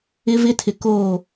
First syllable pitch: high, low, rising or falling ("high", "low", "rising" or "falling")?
high